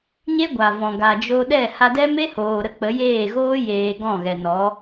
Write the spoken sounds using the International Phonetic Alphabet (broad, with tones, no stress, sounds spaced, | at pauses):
ɲ e˦ ɡʷ a˨ v ɔ̃˨ ɡ a˨ d͡ʒ o˧ ɗ ɛ˦˨ h a˧ d ɛ˦ m e˦ h oː˨ ɾ ə˧ k͡p ə˨˦ j eː˦˨ ɣ oː˦ j eː˧ ɡ ɔ̃˦˨ ɣ ɛ˨ n ɔ˨˦